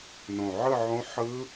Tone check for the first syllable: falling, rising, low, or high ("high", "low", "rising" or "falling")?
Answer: low